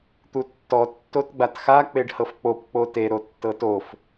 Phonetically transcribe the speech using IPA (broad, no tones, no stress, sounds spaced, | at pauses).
t̪ u tː ɔ tː o t ɡ͡b a t x a k͡p e ɖ h ɤ f k͡p o p k͡p o t e ɾ o tː ɤ t o f